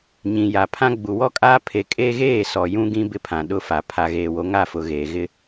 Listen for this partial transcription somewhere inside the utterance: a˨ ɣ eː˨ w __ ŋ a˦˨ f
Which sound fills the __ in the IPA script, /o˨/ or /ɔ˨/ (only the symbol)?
o˨